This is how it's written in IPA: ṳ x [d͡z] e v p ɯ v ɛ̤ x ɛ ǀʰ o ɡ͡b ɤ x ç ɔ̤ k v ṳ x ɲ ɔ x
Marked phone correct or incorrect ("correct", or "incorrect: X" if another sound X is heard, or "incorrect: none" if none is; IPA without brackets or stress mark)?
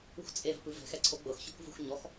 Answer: incorrect: t͡sʼ